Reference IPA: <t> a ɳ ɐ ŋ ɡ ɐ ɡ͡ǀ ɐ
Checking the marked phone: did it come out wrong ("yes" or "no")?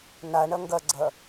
yes